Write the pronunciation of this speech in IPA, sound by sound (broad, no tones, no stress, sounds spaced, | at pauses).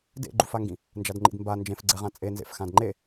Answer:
d ḛ ɡ͡ǃ u f a ŋ ɡ ĩ | n d͡ʒ a d ŋ͡ǃ ḭ d m b a n d͡ʒ ẽ f ɡ͡ǀ ɛ ʁ ã t͡sʼ e n z ḛ f x ã d ŋ͡ǃ e